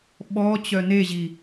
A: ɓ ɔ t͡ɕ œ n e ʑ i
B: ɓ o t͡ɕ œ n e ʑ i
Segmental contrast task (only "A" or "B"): A